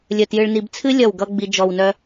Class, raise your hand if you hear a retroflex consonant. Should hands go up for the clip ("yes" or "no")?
yes